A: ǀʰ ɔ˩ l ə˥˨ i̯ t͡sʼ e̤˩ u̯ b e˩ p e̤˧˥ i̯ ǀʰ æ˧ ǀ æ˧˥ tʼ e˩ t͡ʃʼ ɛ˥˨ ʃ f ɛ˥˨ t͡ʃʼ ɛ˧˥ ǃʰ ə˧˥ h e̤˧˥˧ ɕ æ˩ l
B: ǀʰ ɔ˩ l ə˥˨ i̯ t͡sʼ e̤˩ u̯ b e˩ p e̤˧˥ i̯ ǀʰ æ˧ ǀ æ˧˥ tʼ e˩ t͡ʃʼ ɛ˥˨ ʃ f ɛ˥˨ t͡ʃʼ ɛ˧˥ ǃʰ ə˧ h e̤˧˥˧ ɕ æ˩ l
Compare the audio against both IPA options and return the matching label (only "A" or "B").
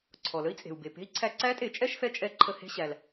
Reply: B